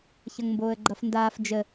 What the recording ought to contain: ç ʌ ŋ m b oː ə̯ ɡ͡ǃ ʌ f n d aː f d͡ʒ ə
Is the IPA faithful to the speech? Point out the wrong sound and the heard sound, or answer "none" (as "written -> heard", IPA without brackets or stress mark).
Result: none